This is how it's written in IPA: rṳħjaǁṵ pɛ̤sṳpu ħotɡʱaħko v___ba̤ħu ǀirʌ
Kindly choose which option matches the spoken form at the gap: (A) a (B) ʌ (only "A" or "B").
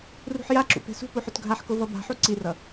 B